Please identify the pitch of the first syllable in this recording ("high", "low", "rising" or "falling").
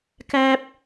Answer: high